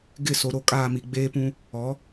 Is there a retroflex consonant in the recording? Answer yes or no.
no